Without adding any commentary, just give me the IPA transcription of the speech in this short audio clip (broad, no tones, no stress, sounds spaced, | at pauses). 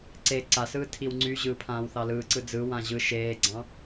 ǀ e ǀ a s ɯː tʰ i w ŋ͡ǀ y ʑ ɯː pʰ ãː w θ ɑ l ɯː ǀ ɯ d͡z ɯ w ã ʑ ɯ ʃ eː ɡ͡ǀ ɑ̃